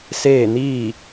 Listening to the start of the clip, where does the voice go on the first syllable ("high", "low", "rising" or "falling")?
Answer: falling